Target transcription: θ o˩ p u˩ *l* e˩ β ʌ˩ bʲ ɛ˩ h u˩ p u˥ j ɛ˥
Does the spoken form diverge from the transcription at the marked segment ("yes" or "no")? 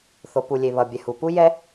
yes